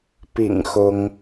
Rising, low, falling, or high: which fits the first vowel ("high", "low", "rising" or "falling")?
low